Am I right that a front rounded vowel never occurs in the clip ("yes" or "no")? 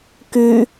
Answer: no